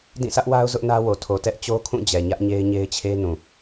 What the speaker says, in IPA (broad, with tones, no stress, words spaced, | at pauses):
dĩ˦˨sʰä˦ʔwa˦ʊ̯ zʊ˦ʔnä˦wo˨ tʰo˨tɛ˦ʔ t͡ɕo˦kʰũ˦˨d͡ʑɛ˨ ɲä˦ʔɲe˦ɪ̯ ɲe˦ɪ̯t͡ɕʰe˦nũ˨